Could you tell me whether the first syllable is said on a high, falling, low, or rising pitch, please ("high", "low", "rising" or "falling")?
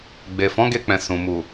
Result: low